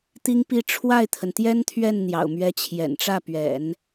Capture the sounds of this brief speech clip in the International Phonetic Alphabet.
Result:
t̪ i˥ ŋ p i˥ ʈ͡ʂʰ w a˥˩ ɪ̯ t̪ʰ ə˩ n t̪ j ɛ˥ n t̪ʰ ɥ ɛ˥˩ n n̪ j ɑ̰˨˩ ʊ̯ m ɥ ɛ˧˥ t͡ɕʰ j ɛ̰˨˩ n ʈ͡ʂ ä˥˩ p ɥ ɛ̰˨˩˦ n

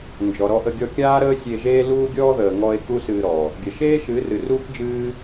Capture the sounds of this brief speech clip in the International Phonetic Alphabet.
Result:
n d͡ʒ ɔ˨ ɾ ɔ˧ ʔ ə˧ ɡʲ ɔ˧ kʲ aː˦ ɾ əː˦ sʲ e˧ ʒ eː˦ l uː˦ ɡʲ ɔː˦ ð əː˨ ŋ ɔ˧ e̯ k u˦ s ɨː˧ ɾ ɔ˨ | ɡʲ ə˨ ʃ eː˦ ʃ ɨ˨˦ r ɨ˨ r uː˦ k d͡ʒ ɨː˦

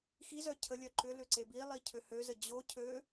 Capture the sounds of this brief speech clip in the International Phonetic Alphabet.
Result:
x i z œ cʰ ə lʲ œ ǃ ʏ l ʏ ǀ e b i lˠ i cʰ ø h ø z ə d͡ʑ o cʰ ø

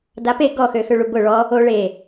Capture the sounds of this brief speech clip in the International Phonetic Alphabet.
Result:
d a p e ɡ ɔ x ø x ø ɭ u b ʊ ɭ ɔ | o ɭ e

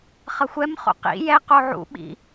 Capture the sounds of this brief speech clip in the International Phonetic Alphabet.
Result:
χ ʌ xʷ ɛ m χ o̰ q ḭ j ɛ q o ʕ ṵ ɓ ḭ

